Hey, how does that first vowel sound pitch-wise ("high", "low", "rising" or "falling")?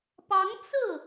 rising